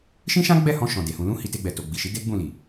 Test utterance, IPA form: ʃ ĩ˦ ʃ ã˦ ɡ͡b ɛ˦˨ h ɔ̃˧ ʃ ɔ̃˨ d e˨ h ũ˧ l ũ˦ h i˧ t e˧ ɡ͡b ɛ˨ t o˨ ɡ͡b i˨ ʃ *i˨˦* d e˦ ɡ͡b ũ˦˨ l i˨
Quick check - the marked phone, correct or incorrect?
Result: correct